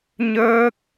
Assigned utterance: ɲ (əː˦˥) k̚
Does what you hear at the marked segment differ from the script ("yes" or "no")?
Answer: no